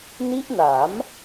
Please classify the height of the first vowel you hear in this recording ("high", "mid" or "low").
high